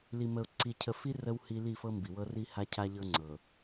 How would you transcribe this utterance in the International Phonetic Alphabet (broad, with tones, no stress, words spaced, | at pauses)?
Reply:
li˨mə˨ʊ̯ ǀi˨cʰə˨fi˦ rə˦whi˦ li˦˨fɤ˦mbi˨wɤ˦ ri˦ha˦cʰa˦ʎɤ˦ ŋ͡ǀɤ˨